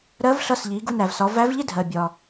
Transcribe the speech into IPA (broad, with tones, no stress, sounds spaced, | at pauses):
ɾ ɜ˧˥ v ɬ ʌ˧ s ʎ i˩˧ ɡ u˧ n æ˩ v s ɒ˩˧ v æ˧˥ v ʎ ɪ˥ dʱ ɜ˩ bʲ ɒ˩